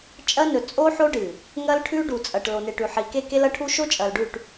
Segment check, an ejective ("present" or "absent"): present